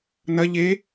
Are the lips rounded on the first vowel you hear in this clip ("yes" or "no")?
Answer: no